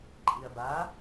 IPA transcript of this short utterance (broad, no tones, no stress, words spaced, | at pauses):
ǃʼiɐ̯ba